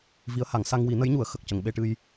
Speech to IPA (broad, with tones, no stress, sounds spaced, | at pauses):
v i˧˥ ə̯ h a˨˩˦ ŋ s a˧ ŋ w i˨˩˦ n ə˧˥ j ɲ u˨˩˦ ə̯ x ə˨˩ k̚ c ə˨˩˨ ŋ ɓ e˧ ʈ ɨ˧ j